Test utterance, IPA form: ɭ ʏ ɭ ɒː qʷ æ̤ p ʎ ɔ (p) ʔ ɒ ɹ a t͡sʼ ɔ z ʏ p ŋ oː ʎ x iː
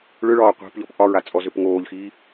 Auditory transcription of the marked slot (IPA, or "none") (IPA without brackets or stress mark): p